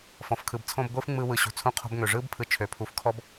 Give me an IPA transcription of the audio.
fɔ̃˨f kʰɯ˨bt͡sʰõ˦bɡʷɯː˥f ŋ͡mɯː˦wɯ˩ ɕṳ˩ t͡sʰũ˦qʰo̤˦bŋø˩ ʐɯː˥bpʰɯ˨t͡ʃʰø˩ pʰu˩fkʰɔ˦b

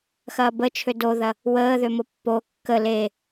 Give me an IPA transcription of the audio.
xɐːbət͡ʃʰø doðɐ | wəːðømo pːo kːə le

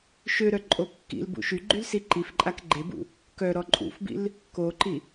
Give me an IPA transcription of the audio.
ʃøɾœ ǃʼokːḭlbṵ ʃyɡ͡ǃyl siǃifǃʼak ɡ͡ǃebṵ | kœɾɔ ǃʼṵfbḭl | koǃi

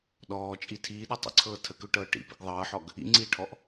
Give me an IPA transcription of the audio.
ɗɔːt͡ʃʼi tʰiːɗɤ tˤə̰ǀʰɤː tʰəkøʈɤː ʈḭpḭɡ ðˤɤːħɔɡ | ḭŋ͡ǀiːʈʰɔʔ

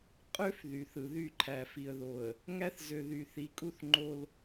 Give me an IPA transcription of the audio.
qʼø˦f ðy˨θɯ˨ ðy˦˨ǃʰæ˨ fi˨ə̯ðo˨ə̯ | ŋæ˦θzø˨ ðy˨θi˨˦kʼu˦θ ŋ͡ǃo˦l

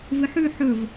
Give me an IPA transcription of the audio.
vɨħʉ ħɵv

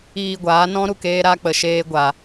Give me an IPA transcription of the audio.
iː˧ɡʷaː˨˦nɔ̃˦ ɾu˧k eː˦ɾa˦k͡pə˧ʃeː˦ ɡʷa˧

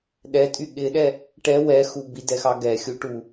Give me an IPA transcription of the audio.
ɗɛtʼy ɠɪɗɛ | ʈɛ wɛxu bidɛxɑ ɡɛxʲuʈu

